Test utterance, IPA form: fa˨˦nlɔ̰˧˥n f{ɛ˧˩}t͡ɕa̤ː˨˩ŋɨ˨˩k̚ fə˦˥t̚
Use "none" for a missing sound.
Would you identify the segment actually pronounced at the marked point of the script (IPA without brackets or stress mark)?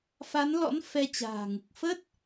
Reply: ɛ˧